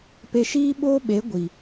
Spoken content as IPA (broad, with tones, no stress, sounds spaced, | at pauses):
p e˧ ʃ iː˦ ɓ oː˦ ɓ e˨˦ ɡʷ i˨